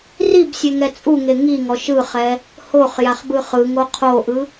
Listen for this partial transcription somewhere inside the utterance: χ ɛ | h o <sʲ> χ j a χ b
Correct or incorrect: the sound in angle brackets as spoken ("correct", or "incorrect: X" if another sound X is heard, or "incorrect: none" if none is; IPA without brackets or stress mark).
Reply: incorrect: none